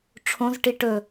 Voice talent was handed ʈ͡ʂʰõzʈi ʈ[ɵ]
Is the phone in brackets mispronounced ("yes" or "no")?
no